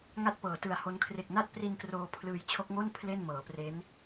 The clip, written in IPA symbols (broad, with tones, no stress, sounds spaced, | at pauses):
ŋ a˥˩ t̚ p ɤː˩˦ t ɯ˨˩ a̯ h o˦˥ n kʰ r e˨˩ k̚ n a˥˩ t̚ p r i˧ n k r oː˧ pʰ l ɯː˧ j t͡ɕʰ o˦˥ k̚ ŋ o˥˩ n pʰ l e˥˩ n m ɤː˩˦ p r e˦˥ n